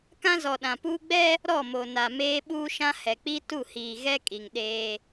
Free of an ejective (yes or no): no